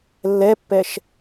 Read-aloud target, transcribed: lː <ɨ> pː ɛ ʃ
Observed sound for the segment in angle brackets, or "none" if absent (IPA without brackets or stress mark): ɛ